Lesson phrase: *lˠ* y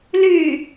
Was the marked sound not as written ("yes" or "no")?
yes